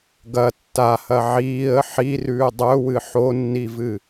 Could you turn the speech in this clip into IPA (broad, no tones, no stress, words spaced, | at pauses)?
ɡɐ tːahɐ ʕiːə̯ ħirʉː dˤɵwɨ ħonːivɨ